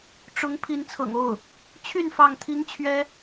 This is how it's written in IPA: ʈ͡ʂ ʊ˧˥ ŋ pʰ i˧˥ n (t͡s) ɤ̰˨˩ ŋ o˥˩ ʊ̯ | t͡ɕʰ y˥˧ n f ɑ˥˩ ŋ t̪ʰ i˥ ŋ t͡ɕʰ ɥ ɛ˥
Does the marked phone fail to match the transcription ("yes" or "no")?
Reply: yes